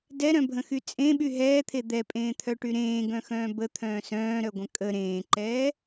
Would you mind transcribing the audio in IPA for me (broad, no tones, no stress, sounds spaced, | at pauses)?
d ɛ ɾ œ̃ bʱ ə̃ x y t͡sʼ ẽ ɓ y ɦ ɛː t̪ʰ e d̪ ɛ pʼ ẽː t̪ʰ œ ʈ y ɾ ẽː ɡ œ̃ x œ̃ː b ə t̪ʰ œ̃ː s œ̃ː ɾ œ ɡʷ ə̃ kʼ ə ɾ ẽː ǃ ɛː